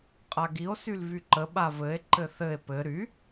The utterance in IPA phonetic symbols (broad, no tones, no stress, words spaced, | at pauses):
qʼaɡio̯ sylvyǃə ɓavɘe̯ ǃɘθɘe̯ pɘ ɾy